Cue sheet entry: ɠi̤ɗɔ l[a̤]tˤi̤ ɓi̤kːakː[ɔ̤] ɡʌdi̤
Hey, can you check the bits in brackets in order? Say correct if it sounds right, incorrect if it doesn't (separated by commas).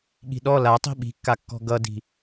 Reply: incorrect, correct